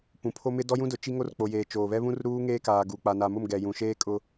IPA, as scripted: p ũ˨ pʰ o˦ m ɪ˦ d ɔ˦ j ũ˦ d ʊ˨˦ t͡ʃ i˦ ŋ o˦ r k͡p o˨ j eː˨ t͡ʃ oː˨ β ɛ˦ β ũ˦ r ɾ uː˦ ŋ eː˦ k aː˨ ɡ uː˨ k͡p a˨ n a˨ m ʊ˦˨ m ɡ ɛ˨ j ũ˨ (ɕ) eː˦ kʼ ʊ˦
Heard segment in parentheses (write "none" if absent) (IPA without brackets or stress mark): ʃ